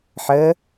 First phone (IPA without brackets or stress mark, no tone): ħ